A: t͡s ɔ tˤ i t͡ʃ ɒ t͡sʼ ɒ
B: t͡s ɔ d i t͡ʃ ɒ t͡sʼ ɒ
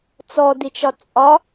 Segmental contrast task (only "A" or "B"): B